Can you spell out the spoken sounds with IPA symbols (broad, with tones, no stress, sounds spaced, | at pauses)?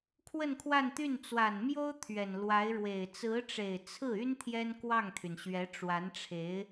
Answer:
kʰ w ə˥˧ n kʰ w a˥˧ n t̪ y˥˩ n t͡s w a˨˩ n m j o˥ ʊ̯ t̪ʰ ɥ ɛ˨˩ n l w a˧˥ ɪ̯ ɻ w e˨˩ ɪ̯ t͡s ɹ̩˧˥ ʈ͡ʂ e˨˩ ɪ̯ t͡sʰ ɹ̩˥˩ y˥ n t̪ʰ j ɛ˥ n k w ɑ˥˩ ŋ t̪ʰ y˩ n ɕ ɥ ɛ˧˥ ʈ͡ʂ w a˧˥ n ʈ͡ʂʰ e˧˥ ɪ̯